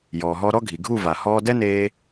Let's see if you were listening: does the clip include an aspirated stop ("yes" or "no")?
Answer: no